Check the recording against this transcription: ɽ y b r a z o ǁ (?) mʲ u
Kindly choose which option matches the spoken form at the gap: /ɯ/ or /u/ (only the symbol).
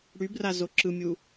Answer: ɯ